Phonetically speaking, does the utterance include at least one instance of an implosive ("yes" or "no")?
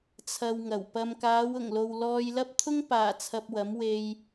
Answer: no